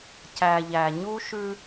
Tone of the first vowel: low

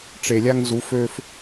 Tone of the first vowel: low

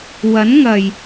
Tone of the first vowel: rising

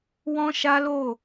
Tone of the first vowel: high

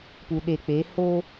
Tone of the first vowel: low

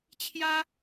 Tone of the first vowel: high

